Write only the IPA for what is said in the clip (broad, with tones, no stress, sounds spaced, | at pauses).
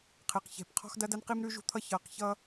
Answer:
qʰ e˨ q ç ɛ̤˨ p qʰ ɔ̤˦ x d ɐ˦ d ɐ˦ n q i˦ m ɾ ʉ˦ ʒ ṳ˦ t̪ʰ ʌ˦˨ ç ʌ˨ q ç ʌ˦